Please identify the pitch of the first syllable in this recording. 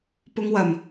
low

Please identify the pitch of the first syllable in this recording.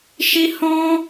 high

